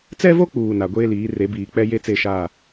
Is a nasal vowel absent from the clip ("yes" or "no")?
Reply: yes